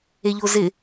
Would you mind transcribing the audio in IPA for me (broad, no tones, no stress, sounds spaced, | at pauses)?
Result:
e ʎ o z ɪ